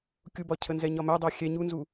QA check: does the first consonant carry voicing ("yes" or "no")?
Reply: no